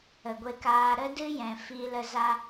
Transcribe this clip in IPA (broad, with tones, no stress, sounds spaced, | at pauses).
ə˨ ɡʷ e˧ k aː˧ ɾ ə˦ d ɨ˦ j ɛ̃˨ f i˧ l ə˧ z a˧